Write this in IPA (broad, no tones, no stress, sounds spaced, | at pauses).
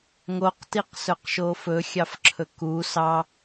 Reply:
ŋ o q t i q s ɵ q ʃ o f ɵ xʲ ɑ f ǁʰ ɵ k u s ɑ